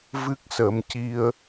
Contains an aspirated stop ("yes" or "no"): no